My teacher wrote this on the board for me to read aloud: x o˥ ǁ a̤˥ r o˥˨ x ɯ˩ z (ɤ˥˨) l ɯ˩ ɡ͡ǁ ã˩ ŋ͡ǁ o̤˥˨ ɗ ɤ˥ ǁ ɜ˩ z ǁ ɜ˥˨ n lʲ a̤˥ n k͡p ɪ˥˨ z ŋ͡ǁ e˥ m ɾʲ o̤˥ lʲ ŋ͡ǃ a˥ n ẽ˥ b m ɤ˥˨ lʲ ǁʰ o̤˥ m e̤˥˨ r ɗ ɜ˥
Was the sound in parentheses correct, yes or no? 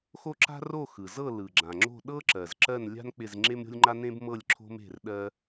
yes